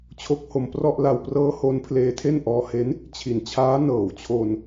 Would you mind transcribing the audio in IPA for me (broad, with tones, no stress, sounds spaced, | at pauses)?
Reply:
t͡ɕʰ o˦˥ k̚ h o˧ m p r ɔ˥˩ ʔ l a˧ w p r ɤː˦˥ h o˦˥ n pʰ l eː˦˥ tʰ e˥˩ n ʔ ɔː˧ h e˦˥ n | t͡ɕʰ i˨˩ n t͡ɕʰ aː˦˥ n ɤː˨˩ w t͡ɕʰ o˧ n